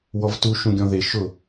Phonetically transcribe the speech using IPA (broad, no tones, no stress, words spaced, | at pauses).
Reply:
wɔvtu ʃũɡʲɔ̃ðe ʃʊ